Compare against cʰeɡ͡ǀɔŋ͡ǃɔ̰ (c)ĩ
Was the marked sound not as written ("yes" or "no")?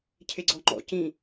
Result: no